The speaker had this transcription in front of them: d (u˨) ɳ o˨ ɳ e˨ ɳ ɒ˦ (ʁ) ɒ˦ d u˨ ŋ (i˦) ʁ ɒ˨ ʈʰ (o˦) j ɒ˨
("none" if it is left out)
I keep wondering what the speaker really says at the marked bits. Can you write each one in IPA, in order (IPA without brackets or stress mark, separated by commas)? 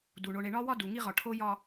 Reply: u˨, w, i˦, o˦